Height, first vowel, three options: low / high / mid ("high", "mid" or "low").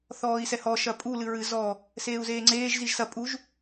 mid